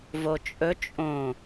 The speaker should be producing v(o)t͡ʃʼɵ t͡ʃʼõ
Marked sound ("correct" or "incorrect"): correct